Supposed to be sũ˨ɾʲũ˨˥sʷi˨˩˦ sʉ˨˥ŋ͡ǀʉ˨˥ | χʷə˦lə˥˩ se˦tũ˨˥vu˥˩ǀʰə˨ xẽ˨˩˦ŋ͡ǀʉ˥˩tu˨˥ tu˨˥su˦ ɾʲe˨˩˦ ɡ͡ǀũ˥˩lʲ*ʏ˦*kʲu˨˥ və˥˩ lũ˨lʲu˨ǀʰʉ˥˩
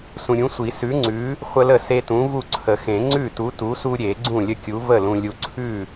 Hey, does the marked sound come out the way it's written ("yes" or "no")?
no